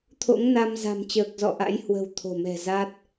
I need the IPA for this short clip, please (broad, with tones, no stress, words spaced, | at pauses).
t̪ʰo̰˧˥ŋna˧mza̤˨˩m t͡ɕəː˨˩k̚zɔ̰˧˨ ʔa̰˧˥jhwə̤˨˩w t̪ʰo̤˨˩mɛ̤˨˩za˦˥t̚